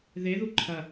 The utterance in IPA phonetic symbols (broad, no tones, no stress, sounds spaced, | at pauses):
ð e ð u ǃʰ ɐ